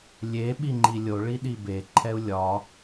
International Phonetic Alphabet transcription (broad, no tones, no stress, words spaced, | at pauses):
lʲe ɓiŋ͡ǃilʲoɭi ɗibeǃʰɛu̯ lʲɒ